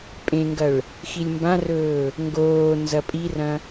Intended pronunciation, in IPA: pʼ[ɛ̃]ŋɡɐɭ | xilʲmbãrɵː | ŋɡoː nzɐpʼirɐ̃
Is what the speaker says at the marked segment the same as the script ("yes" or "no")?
no